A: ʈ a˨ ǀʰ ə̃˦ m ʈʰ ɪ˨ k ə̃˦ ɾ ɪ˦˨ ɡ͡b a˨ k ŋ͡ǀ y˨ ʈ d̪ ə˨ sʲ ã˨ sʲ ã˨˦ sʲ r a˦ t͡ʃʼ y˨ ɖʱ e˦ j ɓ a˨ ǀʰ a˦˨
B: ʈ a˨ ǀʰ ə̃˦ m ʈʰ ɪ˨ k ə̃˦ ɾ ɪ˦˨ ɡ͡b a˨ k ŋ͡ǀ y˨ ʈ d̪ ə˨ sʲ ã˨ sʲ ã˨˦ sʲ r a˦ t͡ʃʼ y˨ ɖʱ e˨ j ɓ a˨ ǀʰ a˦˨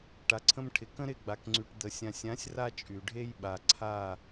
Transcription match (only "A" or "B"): A